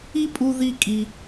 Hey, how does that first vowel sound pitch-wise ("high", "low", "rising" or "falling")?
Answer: high